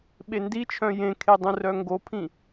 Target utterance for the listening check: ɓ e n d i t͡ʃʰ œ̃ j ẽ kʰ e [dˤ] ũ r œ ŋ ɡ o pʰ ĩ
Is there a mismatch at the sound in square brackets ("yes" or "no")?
no